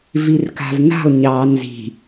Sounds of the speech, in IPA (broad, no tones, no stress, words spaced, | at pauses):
virka̤vna̤lˠ ɲɑ nzi̤